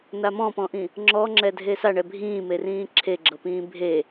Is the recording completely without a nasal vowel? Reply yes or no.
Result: no